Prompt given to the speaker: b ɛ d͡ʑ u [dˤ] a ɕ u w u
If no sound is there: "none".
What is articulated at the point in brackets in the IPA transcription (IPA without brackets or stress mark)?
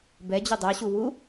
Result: dˤ